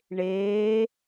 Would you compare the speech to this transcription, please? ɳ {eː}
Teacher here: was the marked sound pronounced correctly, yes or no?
yes